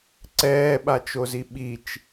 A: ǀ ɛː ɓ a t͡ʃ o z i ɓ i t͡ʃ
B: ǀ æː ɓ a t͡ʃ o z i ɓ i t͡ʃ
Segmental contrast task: A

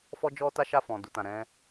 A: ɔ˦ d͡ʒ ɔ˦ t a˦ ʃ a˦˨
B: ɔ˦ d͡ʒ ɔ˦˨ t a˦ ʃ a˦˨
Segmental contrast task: A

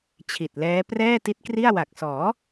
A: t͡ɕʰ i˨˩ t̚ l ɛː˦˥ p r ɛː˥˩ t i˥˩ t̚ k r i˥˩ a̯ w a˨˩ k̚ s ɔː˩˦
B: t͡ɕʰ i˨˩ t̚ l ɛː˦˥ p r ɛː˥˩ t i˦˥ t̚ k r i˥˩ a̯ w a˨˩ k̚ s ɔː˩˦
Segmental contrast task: B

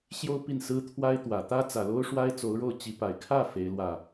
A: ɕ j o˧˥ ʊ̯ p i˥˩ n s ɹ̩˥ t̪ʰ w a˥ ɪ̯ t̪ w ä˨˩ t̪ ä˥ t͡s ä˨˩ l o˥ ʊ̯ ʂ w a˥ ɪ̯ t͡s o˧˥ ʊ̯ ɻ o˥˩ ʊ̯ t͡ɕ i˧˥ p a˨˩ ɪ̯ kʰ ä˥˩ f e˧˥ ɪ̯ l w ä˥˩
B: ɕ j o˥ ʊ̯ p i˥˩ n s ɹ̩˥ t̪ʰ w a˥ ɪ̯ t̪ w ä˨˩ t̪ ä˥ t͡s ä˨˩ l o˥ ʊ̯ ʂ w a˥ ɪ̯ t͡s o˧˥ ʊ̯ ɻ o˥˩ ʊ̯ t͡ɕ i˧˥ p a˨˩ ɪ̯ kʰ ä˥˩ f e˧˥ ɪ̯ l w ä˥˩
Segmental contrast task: B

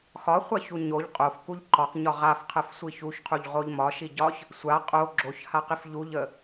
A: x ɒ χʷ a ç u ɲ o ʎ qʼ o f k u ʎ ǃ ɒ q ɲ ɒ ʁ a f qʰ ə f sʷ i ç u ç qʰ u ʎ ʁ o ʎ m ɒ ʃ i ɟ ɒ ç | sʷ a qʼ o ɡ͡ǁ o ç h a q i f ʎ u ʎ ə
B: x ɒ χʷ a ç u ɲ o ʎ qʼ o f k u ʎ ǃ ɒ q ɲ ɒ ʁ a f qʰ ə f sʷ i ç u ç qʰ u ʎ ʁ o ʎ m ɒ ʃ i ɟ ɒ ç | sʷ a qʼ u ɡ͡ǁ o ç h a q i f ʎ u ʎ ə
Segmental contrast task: A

